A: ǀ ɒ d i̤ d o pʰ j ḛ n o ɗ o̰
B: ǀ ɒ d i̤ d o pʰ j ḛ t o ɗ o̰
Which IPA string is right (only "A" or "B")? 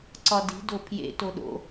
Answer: B